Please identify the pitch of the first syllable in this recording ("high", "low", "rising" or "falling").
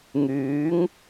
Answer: rising